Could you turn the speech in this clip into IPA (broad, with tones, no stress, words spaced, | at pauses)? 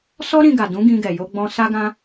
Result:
sɔ˦ɾĩ˧ɡa˨dũ˨˦ ɡĩ˧ɡɛ˨jo˧ɡ͡bɔ̃˧ sa˦ɡã˦